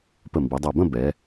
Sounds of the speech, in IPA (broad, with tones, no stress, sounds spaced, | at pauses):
p ə˧˩ m b i˩˧ dˤ ɛ˧˩ b ə̃˥˧ b ɛ˩˧